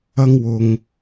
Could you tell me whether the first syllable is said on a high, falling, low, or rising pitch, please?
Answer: high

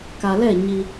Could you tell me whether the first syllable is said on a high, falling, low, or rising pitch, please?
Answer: low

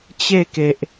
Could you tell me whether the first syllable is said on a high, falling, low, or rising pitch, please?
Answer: falling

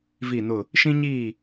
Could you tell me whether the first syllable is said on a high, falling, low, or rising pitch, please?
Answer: falling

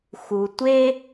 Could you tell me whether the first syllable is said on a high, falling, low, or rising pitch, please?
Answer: low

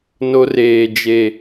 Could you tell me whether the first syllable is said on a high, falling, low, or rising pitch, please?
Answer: high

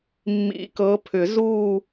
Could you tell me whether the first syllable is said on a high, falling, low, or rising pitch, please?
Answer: rising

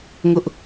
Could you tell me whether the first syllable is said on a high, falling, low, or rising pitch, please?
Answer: high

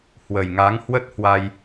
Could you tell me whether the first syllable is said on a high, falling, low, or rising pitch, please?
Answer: low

